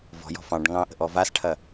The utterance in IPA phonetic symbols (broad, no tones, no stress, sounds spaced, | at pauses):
v ɔ̤ j ɔ̤ f ɑ̃ ɖ ŋ ɑ̃ ʔ ə̤ ʔ ɔ v a s ʈʰ ɐ